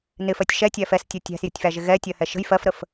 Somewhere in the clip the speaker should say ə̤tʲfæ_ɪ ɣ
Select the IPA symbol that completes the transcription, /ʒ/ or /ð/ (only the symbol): ʒ